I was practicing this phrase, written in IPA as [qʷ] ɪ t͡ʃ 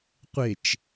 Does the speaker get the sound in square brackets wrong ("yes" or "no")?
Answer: no